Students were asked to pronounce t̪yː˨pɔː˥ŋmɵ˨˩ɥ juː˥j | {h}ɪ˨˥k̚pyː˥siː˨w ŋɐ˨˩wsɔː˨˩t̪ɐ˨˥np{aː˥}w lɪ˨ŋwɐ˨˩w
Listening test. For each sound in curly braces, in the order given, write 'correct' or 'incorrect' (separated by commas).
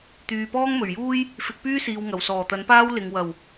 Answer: incorrect, correct